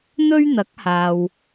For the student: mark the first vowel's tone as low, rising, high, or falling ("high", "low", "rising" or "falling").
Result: high